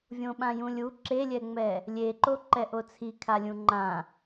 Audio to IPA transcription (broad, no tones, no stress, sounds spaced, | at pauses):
vʲ õ ɓ ã j ũ lʲ u ǁ e lʲ ɛ ŋ͡m ɛ | lʲ e ǃ o ǃ ɛ ʔ o t͡sʰ i kʰ a lʲ ũ ŋ͡ǃ ã